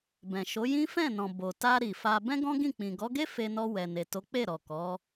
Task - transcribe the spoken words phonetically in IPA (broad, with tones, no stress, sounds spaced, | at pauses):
b ɛ̃˨ ʃ o˨˦ j ĩ˦ f ɛ̃˦˨ n ɔ̃˨ b o˨ t a˧ ɾ i˨ f a˧ b ɛ̃˦ ɡ ɔ̃˦ ɡ ĩ˦˨ k͡p ĩ˨ ɡ ɔ˨˦ ɡ e˦ f e˧ n ɔ˧ w ɛ˨ n e˨ t o˨˦ k͡p e˦˨ ɾ ɔ˨ k ɔ˨˦